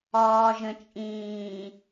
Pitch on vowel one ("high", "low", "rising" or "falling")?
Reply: low